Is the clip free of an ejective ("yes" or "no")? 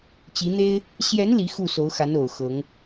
yes